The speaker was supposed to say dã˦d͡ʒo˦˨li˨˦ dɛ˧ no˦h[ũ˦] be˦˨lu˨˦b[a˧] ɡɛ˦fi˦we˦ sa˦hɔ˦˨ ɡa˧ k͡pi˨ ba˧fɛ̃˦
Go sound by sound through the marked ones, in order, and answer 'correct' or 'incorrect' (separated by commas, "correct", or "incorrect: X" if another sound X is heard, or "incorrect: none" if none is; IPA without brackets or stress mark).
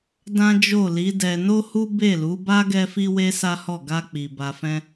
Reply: incorrect: u˦, incorrect: a˦